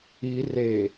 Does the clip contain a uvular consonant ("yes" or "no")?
no